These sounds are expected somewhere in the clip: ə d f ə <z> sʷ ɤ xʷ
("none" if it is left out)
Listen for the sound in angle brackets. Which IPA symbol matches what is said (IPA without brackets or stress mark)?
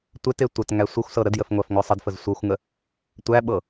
z